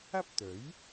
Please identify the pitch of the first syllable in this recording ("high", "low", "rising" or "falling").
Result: high